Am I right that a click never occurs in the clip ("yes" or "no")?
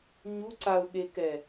no